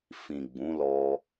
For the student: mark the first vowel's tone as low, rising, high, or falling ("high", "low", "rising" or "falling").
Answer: low